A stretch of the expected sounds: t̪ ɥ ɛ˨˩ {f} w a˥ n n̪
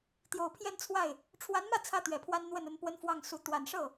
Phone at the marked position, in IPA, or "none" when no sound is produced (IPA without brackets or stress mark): pʰ